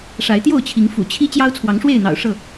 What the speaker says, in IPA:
ʂa˨˦ɪ̯t̪jo˥˨ʊ̯t͡ɕʰi˨˦ŋ fṵ˨˩t͡ɕʰi˦ t͡ɕjɑ˦ʊ̯t͡sʰwɑ˨˦ŋʂwe˥˨ɪ̯n̪ɑ̰˨˩ʊ̯ ʂɤ˥˨

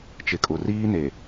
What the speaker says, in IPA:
t͡ʃɪ˨kʼʊ˨ riː˦ne˨

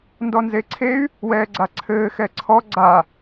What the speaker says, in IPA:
ndɔnzeǀʰey̯ | wɛːɡ͡ǀaǀʰɘː xɛǀʰɔ ɡ͡ǀa

